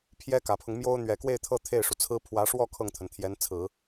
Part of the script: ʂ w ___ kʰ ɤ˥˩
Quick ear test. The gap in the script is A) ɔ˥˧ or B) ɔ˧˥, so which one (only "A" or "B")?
A